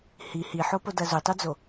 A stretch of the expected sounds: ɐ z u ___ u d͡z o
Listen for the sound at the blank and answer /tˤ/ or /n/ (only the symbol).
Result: tˤ